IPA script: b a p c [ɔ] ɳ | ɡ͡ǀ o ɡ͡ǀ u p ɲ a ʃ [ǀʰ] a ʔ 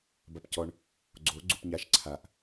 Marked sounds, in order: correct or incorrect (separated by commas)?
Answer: correct, correct